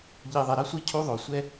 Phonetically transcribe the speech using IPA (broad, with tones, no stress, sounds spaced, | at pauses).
ʎ i˨ ðˤ ɛ˨ ɾ ʌ˦ sʷ i˦ cʰ u˦ ðˤ o˨ sʷ ɛ˦